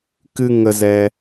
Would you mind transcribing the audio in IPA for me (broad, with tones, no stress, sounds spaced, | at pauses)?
k ɨ˧ ŋ ə˧ z ɛ˧